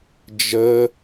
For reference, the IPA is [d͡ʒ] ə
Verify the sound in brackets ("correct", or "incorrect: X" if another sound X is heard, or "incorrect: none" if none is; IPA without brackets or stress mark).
correct